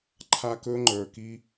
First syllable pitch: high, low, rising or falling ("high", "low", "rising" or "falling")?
high